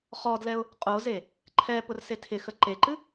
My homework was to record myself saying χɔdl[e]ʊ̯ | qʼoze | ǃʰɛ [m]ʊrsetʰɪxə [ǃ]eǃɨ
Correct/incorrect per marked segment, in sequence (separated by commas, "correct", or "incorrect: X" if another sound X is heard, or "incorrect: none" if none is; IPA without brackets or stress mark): incorrect: ɛ, incorrect: p, correct